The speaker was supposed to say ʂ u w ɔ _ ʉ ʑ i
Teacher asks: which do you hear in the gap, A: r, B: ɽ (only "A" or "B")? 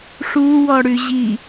B